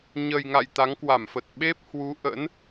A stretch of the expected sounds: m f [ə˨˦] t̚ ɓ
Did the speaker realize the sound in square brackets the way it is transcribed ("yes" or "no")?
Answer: no